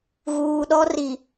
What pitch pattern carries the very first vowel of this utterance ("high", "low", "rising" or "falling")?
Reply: low